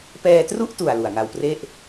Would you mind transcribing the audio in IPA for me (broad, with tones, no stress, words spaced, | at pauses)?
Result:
pɛː˧tru˥˩ʔtu˨˩a̯ lu˨˩a̯ŋa˧wpre˥˩ʔ